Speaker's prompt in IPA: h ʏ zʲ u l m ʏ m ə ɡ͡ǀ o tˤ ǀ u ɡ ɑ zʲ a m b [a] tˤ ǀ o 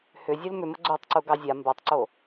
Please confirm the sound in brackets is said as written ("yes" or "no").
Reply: yes